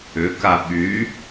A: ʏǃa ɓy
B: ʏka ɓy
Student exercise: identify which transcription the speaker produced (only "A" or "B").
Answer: B